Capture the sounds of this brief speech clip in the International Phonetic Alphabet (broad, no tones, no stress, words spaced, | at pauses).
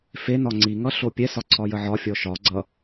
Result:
fe nɒŋ͡ǀiŋʌ ɬopʲɛsɒ ǀʰɒjəʕɒfʲɔ ʃɒ ɡ͡ǀʌ